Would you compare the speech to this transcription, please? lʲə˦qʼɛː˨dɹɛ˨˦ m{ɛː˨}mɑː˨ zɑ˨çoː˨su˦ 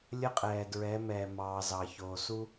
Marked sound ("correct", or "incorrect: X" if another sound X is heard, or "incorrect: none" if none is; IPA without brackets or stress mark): correct